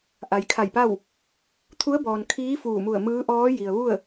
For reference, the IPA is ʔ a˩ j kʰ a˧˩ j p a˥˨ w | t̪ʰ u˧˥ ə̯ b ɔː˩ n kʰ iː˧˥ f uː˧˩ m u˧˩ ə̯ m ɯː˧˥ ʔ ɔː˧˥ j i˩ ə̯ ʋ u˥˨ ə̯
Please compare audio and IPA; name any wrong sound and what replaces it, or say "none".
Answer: none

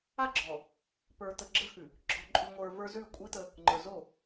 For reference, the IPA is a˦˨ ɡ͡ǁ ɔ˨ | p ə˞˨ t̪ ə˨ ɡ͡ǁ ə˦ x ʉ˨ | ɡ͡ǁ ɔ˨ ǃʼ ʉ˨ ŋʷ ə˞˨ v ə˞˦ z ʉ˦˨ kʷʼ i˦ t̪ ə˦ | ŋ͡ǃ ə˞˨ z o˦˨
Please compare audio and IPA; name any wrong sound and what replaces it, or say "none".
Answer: none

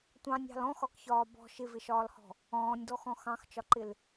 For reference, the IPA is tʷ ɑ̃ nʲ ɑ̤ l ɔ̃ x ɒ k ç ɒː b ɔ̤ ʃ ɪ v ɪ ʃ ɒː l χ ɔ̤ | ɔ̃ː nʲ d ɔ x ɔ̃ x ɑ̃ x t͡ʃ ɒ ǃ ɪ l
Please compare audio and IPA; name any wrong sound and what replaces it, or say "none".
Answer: χ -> h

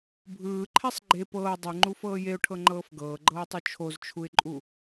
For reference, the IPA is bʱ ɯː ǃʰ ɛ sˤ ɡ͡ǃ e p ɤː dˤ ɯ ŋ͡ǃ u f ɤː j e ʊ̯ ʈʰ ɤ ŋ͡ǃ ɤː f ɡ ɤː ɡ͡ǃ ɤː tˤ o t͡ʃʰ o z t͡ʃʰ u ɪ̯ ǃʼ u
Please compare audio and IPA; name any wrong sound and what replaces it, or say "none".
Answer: none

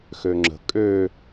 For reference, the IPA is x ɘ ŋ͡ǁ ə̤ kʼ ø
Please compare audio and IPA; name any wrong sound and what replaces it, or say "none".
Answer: ɘ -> ø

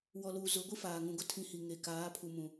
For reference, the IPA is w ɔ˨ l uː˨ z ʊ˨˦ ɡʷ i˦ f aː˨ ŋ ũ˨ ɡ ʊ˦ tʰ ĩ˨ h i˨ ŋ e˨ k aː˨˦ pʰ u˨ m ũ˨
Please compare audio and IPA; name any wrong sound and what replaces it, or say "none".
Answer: none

